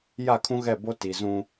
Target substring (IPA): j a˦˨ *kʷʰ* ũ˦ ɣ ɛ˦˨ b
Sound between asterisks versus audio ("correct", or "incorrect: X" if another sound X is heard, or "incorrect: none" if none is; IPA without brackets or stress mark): incorrect: kʰ